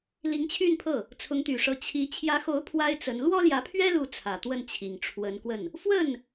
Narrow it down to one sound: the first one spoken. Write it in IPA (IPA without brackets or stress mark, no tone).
l